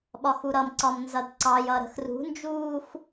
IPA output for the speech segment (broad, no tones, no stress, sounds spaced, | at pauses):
ɓ ɒ x u ɾ ʌ m ǀ ɒ m n z ʌ d ǀ ɑ j ʌ ɾ ə̤ x r ṳ n d͡ʒ uː x